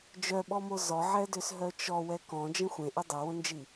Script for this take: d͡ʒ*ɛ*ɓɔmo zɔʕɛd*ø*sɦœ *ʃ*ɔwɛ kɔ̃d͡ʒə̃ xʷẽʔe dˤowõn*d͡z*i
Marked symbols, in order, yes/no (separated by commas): no, yes, no, no